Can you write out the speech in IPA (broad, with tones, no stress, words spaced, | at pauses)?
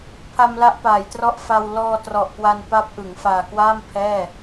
pʰa˧mla˦˥ʔpaː˩˦jtrɔ˦˥ʔ fa˧w lɔː˧trɔ˨˩ʔkwa˧n pa˦˥p̚ʔɯ˩˦ŋ faː˨˩kwaː˥˩m pʰɛː˥˩